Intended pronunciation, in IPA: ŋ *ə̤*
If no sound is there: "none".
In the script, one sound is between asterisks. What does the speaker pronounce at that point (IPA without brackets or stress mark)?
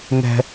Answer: ɛ̤